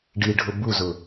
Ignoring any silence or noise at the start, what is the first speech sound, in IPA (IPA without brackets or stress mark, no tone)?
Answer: ɖ